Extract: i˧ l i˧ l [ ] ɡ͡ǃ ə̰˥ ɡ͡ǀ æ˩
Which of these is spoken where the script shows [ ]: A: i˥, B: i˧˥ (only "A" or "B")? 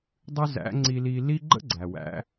A